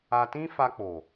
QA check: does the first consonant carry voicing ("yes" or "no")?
no